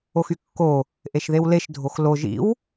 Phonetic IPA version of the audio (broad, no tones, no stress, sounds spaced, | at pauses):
o x y kː o | ʔ e ʃ ð e w l e ʃ dʱ o x l o ʒ ḭ w